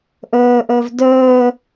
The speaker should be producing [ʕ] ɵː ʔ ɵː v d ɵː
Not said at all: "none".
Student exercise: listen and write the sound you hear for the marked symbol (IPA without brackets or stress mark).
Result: ʔ